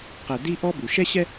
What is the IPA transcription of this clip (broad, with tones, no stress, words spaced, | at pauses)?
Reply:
qɛ˨di˦ʔɔ˦ bu˩ʃɛ˥ɕɛ˥